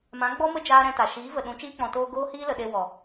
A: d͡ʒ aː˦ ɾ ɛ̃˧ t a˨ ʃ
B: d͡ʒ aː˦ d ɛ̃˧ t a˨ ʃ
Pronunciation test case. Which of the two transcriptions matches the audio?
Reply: A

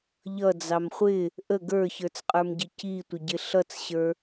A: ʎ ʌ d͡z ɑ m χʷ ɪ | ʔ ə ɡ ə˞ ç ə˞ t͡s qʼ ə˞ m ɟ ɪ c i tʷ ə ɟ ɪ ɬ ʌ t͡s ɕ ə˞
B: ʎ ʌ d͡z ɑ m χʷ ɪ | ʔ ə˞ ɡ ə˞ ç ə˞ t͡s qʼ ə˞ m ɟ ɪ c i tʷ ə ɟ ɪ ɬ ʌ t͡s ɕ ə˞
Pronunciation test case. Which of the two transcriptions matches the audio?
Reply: A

